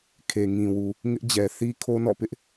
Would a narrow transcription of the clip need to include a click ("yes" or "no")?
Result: no